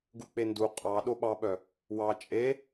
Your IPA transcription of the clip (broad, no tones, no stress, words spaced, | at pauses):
ɡuk͡pendu qʼɑ ɗoɓɑɓœ | wɑ t͡ʃʼe